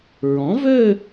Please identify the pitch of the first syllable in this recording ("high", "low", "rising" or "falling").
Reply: rising